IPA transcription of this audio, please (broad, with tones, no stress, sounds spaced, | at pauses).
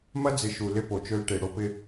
m ɐ˦ d͡z ɪ˨ ʃ u˨ l ɪ˦ p o˨ t͡ʃ ø˦ l ʈ e˨ ɽ o˦ p ɪ˦